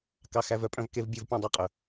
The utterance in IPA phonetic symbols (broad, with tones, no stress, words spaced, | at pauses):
kɑ˧xæ˧vœ˥pʼœ̃˧v ke˧vbʲo˧vpʲœ̃˧ dˤæ˧qʼœ˩